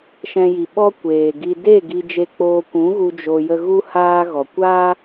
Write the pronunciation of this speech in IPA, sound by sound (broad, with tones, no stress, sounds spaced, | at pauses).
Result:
ʃ ɛ̃˧ j i˨ ɓ ɔ˦ kʷ eː˨ ɡ i˧ d e˦˨ ɡ i˧ d͡ʒ e˧ k͡p oː˧ kʷ ũ˨˦ ɣ u˧ d͡ʒ o˧ j ə˧ ɣ u˦ h aː˦ ɣ ɔ˨ kʷ aː˦